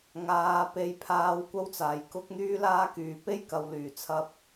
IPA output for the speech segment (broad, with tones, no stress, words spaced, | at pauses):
ŋaː˧ pe˧jpʰaː˧w kʷɐ˥wt͡saː˨jkʊ˥k̚ n̪yː˥laː˥kyː˨ pe˥jkɐ˨wlyː˨˩t͡sʰɐ˧p̚